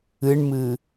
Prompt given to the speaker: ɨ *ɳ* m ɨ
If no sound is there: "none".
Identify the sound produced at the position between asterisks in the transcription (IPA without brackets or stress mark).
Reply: ɳ